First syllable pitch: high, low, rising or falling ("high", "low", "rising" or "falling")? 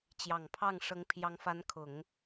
low